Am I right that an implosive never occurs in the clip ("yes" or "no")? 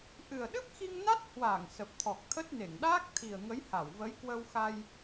no